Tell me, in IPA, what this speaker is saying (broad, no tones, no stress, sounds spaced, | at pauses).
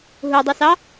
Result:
ɦ u dˤ i s ɑ